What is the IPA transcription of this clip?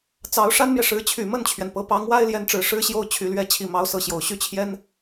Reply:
t͡s ɑ˧˥ ʊ̯ ʂ a˥ n m j ɛ˨ ʂ ɻ̩˧˥ t͡ɕʰ y˨˩ m ə˥˩ n t͡ɕʰ ɥ ɛ˩ n p ɤ˧˥ p ɑ˧˥ ŋ w a˥ ɪ̯ l j ɛ˧˥ n ʈ͡ʂ ɻ̩˨˩ ʂ ɻ̩˥ ɕ j o˥˩ ʊ̯ t͡ɕʰ y˨˩ l ɥ ɛ˧˥ t͡ɕʰ i˨˩ m ɑ˧˥ ʊ̯ s ɤ˧˥ ɕ j o˨˩ ʊ̯ ɕ y˥˩ t͡ɕʰ j ɛ˥ n

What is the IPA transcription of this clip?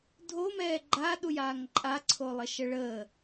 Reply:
dʱ o m ɛː ɡ͡ǃ a ɗ u j aː ŋ ǃʼ a ǀʰ o lˠ ə ʃ ə ɭ əː

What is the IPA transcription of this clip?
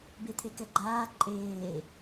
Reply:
b e t̪ʰ e k ɛ ɡ͡ǃ aː ǃʼ eː

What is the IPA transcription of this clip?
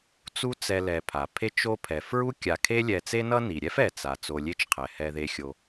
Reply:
t͡s u˦ t͡s ɛ˨ l ɛ˩ pʰ a˩ pʰ e˦ t͡ʃ o˦ pʰ ɛ˩ f ɹ u˥ kʲ a˨ kʰ e˥ lʲ ɛ˨ t͡s e˥ n ʌ˥ n i˩ ɾʲ ɛ˥ f ɛ˩ t͡s a˩ t͡s o˨ lʲ e˥ t͡ʃ qʰ ɛ˩ h ɛ˨ ð e˨ xʲ o˨

